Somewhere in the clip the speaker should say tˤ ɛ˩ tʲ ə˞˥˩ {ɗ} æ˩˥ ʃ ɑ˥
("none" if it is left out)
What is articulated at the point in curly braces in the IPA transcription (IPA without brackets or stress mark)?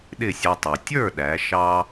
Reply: ɗ